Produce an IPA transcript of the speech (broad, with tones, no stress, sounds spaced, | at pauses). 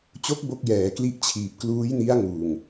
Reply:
t͡ɕ o˦˥ k̚ b o˦˥ k̚ j ɛː˩˦ k l i˦˥ ʔ t͡ɕʰ iː˨˩ p̚ k l uː˦˥ j n i˦˥ a̯ ŋ uː˨˩ ŋ